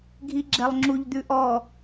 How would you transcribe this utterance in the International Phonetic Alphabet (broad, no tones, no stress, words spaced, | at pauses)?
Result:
ɡʱiɡ͡ǁɛlˠŋ͡ǁuʎd̪ʉ ʔɔ